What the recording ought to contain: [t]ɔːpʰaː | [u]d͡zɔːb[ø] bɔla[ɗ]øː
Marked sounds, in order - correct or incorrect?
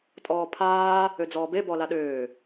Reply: incorrect, incorrect, incorrect, correct

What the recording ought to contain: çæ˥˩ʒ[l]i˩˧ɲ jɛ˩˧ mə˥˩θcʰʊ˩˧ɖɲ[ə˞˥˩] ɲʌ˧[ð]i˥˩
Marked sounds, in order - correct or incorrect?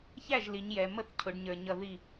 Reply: correct, incorrect, correct

